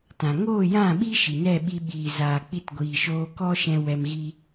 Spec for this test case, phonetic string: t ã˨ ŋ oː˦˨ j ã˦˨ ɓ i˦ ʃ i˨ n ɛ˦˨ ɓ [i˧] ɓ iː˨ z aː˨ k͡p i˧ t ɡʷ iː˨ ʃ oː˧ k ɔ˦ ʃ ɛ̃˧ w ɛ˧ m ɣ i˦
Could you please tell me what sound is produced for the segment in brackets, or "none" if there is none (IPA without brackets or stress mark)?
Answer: i˧